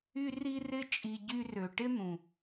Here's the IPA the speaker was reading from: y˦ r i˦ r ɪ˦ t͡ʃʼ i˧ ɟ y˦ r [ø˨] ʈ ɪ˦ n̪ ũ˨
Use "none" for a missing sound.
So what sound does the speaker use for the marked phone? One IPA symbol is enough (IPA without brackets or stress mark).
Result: ø˨